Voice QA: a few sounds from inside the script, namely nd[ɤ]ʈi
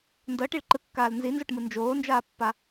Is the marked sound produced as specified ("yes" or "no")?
yes